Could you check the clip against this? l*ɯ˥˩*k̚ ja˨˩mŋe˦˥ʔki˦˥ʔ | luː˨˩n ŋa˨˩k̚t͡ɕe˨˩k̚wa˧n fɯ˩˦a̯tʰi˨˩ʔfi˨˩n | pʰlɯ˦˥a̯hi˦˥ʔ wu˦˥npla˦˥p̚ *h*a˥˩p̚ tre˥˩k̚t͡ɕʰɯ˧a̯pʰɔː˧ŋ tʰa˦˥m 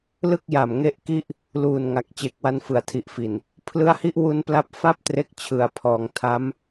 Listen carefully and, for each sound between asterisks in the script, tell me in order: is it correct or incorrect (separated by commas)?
correct, incorrect